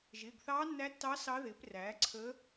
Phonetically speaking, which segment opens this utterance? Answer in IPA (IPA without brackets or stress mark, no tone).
ʒ